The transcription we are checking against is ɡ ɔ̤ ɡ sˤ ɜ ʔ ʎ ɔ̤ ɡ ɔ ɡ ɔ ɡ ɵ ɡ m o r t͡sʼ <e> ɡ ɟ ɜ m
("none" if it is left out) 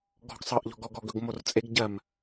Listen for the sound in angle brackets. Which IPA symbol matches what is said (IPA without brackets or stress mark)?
e